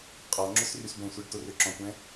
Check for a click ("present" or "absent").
present